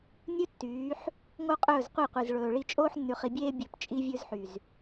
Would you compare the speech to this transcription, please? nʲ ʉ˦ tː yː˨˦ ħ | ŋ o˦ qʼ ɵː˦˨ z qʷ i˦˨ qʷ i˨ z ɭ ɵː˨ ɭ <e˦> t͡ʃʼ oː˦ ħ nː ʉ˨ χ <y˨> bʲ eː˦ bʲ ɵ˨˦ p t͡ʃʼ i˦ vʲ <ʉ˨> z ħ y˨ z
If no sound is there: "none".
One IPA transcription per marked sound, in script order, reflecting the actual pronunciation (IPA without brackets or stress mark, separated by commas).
i˦, i˨, ʉ˦